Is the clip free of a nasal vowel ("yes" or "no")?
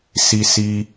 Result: yes